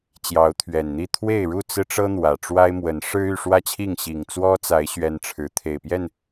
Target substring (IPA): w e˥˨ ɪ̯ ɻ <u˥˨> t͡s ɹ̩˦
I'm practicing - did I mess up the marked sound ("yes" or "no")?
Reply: no